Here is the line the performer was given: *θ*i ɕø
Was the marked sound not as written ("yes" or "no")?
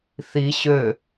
no